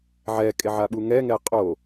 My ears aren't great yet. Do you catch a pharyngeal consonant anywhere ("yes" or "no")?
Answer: yes